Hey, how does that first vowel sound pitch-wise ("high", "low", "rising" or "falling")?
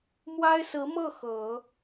high